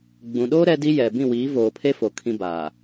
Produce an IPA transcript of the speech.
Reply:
ɡ͡b ũ˨ ɗ oː˦ ɾ ɛ˦ d i˦ j ɛ˨ b ĩ˦˨ w iː˨˦ v oː˨ pʰ e˦ f o˨ kʰ ĩ˦ b aː˨

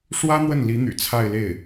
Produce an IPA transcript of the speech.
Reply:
ʂ w ä˥ n̪ w ə˥˩ n l i˧˥ n̪ y̰˨˩ t͡sʰ a˥˧ ɪ̯ l e˥˩ ɪ̯

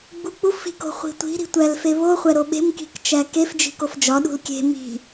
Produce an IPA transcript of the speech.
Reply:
ɡ͡b u k͡p u f i̤ k o̤ χʷ i̤ tʷ i̤ ɾ i̤ tʷ æ l f e β o χʷ æ ɾ o ɓ e̤ m k i̤ k t͡ʃ æ k e f d͡ʒ i̤ k o f d͡ʒ ɒ ɗ ṳ l kʲ e̤ m i̤

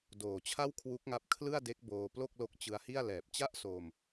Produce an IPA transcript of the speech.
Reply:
d oː˨˩ t͡ɕʰ a˥˩ w kʰ w u˦˥ k̚ ŋ a˦˥ p̚ kʰ l ɯ˥˩ a̯ d e˦˥ k̚ b oː˧ p l o˥˩ k̚ l o˦˥ k̚ t͡ɕ ɯ˧ a̯ h i˥˩ a̯ l ɛː˨˩ p̚ t͡ɕ a˥˩ ʔ s oː˧ m

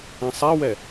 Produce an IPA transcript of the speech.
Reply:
ɛ̃ sˤ ɛ w ɛ

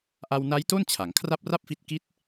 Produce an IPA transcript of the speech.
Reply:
ʔ a˧ w n a˦˥ j t o˥˩ n t͡ɕʰ a˩˦ ŋ kʰ r a˥˩ p̚ r a˥˩ p̚ f i˦˥ t̚ k i˦˥ t̚

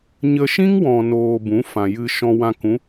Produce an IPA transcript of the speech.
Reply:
ɲ ə˧ ʃ ĩ˦ ŋ w ɔ̃˨ n oː˧ b ũ˨˦ f ã˨ j ɨ˧ ʃ ɔ̃˧ w ã˧ k ũ˨˦

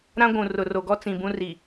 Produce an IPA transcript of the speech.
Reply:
ɾ ã˦ ɡʷ ũ˨ r ʊ˨ r o˨ ɡ ɔ˦ t͡s ĩ˨ b ũ˦ r i˨

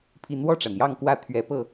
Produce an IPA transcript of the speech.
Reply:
pʰ i˨˦ n w ɔ˥˨ ʈ͡ʂ a˩ n j ɑ˥˨ ŋ k w ä˥˨ t̪ʰ ɥ ɛ˨˦ p ɤ˥˨

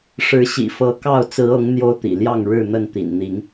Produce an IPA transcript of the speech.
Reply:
ʂ ɻ̩˨˦ ɕ ḭ˨˩ f ɤ˨˦ k ɑ˥˨ ʊ̯ t͡s ɹ̩˨˦ ɤ˨˦ ŋ n̪ j o˦ ʊ̯ t̪ ḭ˨˩ l j ɑ˥˨ ŋ ɻ ɻ̩˥˨ n̪ ə˥˨ n t̪ ḭ˨˩ n n̪ i˨˦ ŋ

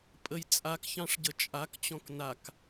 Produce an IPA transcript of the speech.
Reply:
pʼ ə j t͡sʼ a k ç ɑ̃ ʂ ɟ ə t͡ʃʼ a k t͡ɕ ɔ̃ k n a k

